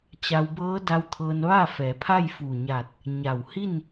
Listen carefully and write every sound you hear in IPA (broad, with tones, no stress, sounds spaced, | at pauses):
t͡ɕ a˧ w b ɤː˧˥ d a˧ w t̪ʰ ɤː˧ n ʋ a˥˨ f ɛː˩˧ pʰ a˥˨ j f uː˧˩ ɲ a˧˩ t̚ | ɲ a˧˩ w h i˥˨ n